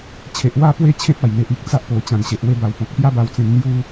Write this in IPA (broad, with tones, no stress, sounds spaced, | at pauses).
t͡ɕʰ e˨ ʔ w a˧ p w e˧ t͡ɕʰ ẽ˦ t̚ a˨˩ j n̪ e˨ ʔ i˦ k̚ t͡s a˦ ʔ p o˨˩ t͡ɕ ã˨˩ n ɕ e˨ ʔ w e˧ b a˨˩ w p ɔ̃˨ k̚ p j a˦ b a˧ w t͡s ẽ˧ n n̪ j u˦